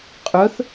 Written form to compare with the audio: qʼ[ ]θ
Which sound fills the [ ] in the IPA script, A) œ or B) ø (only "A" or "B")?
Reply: A